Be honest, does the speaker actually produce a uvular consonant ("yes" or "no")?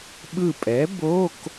no